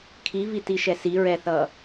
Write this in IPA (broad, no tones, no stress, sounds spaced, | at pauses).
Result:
kʰ i v i t i ʃ ɛ s i ɹ ɛ θ ʌ